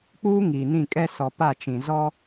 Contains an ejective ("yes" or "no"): yes